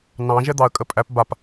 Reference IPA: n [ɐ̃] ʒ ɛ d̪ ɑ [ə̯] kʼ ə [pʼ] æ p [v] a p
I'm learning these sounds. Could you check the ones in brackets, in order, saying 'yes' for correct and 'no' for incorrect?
no, yes, yes, no

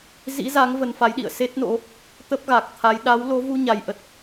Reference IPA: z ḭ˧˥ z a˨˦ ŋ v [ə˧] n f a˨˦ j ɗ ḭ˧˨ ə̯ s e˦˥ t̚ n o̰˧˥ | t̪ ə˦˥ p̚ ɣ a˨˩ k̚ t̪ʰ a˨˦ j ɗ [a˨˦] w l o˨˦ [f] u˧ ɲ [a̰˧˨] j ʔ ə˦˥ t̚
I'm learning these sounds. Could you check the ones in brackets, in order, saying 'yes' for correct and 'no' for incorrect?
yes, yes, no, no

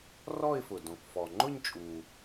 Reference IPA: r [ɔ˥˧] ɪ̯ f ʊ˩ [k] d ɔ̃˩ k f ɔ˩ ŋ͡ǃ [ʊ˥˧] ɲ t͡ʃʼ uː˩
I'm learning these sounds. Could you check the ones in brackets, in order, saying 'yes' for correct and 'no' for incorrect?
yes, no, yes

